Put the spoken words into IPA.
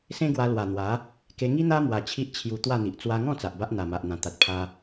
s ẽ˦ ɡ w a˧ l w a˨˩ n̪ w a˨˦ | k e˧ ŋ i˦ n̪ a˦ m w a˧ t͡ɕʰ i˦ ʔ t͡ɕʰ j u˧ t̪ w a˥˧ n̪ i˨ ʔ t͡s w a˧ ŋ ɔ̃˥˧ t͡s a˨ ʔ b a˦ ʔ n̪ a˨˩ m a˨ ʔ n̪ ã˨˩ t̪ a˨ t̚ pʰ a˧

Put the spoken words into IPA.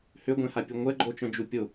h ø ɡʷ ɛ̃ h a pʲ u ŋʷ ɛ ɡ͡ǃ o t͡ʃ œ̃ d͡ʒ u pʲ o

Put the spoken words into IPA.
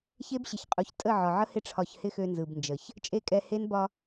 ç e˦ b ɕ ɪ˨ ç qʼ u˨ ç tʼ ə˦˨ ʕ ɒ˨ ʕ ə˦ h ɪ˧ ʈ͡ʂʰ ɒ˨ ç h ɪ˧ x ø˧ n z ɯ˨ b n d͡ʒ ə˨ ç | t͡ʃʼ e˦˨ kʼ ɛ˧ h e˦ n b ɒ˧

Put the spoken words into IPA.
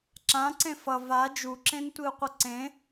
ǁ ã ǀ ẽ f ʌ v a d͡ʒ u ǁ ẽ n tʷ i u̯ qʷ ʌ ǀ ẽ

